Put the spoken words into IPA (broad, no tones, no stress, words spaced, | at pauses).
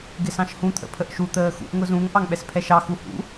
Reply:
ɡɪsɑ̃ʃhũ t̪ʰə̰pʰəʔʃu t̪əːxṵʔ ŋʊzũŋ ʔɑŋɓɛspʰɛʃɑ xuhṵ